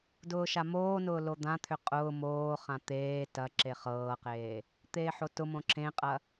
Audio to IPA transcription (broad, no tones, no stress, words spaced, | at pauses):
dʊːʃamoːnʊː lod̪ãt̪ʰʏ qʼʊː moːχã t̪eː tɐ ǁeχɤːqeː | t̪eːħotʊmõ ǁʰẽqʼɐ